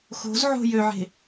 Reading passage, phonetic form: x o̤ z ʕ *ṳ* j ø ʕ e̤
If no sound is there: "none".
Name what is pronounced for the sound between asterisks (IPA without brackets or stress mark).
o̤